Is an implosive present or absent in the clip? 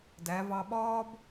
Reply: present